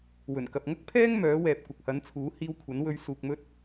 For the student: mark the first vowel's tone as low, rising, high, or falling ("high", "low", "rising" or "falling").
low